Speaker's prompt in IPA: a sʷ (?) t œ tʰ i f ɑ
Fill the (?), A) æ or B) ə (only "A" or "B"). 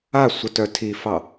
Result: B